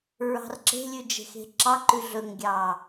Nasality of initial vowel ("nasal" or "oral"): oral